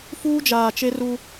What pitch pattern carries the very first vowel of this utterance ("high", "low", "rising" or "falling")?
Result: high